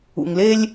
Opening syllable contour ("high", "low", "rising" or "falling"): low